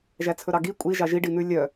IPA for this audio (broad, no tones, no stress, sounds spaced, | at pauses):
ʒ æ t͡sʰ ɵ ɾ ɑ ɡ i kʷʼ i ʒ ɑ ʒ i ɖ i n̪ ʉ lʲ œ